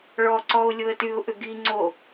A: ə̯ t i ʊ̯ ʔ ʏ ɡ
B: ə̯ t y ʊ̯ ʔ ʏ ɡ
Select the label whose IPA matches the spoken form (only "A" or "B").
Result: B